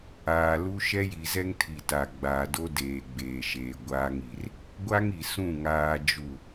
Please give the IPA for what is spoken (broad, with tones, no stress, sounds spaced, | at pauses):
aː˨ l u˦ ʃ ɛ˦ j i˨ z ɛ˦ ŋ tʰ i˨ t a˨ ɡ͡b aː˨ d o˦ d eː˨ ɡ͡b eː˨ ʃ eː˨ ɡʷ aː˦ ŋ i˨ r | ɡʷ a˦ ŋ i˨ s ũ˦˨ ŋ aː˦ d͡ʒ u˦˨